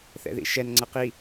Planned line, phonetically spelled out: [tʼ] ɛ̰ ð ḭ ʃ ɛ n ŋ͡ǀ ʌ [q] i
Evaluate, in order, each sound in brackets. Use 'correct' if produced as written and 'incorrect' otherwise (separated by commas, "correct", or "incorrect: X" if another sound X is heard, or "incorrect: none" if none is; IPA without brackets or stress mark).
incorrect: θ, correct